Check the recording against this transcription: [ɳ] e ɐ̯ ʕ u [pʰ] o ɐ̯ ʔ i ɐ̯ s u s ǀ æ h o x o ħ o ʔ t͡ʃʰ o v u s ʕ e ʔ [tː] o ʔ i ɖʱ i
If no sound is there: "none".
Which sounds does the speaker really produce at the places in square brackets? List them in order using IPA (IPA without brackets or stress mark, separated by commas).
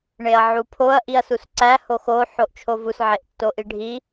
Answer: ɳ, pʰ, tː